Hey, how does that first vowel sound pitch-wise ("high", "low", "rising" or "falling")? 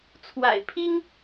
low